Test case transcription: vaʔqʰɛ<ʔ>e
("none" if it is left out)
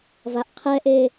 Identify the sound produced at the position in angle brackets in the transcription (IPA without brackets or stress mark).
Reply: ʔ